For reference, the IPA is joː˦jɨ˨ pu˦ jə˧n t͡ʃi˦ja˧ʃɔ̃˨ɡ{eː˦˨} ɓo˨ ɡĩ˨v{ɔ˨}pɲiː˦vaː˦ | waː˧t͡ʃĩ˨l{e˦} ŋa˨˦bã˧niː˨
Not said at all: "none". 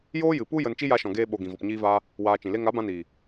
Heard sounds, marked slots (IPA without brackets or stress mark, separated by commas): eː˧, ɔ˨, e˦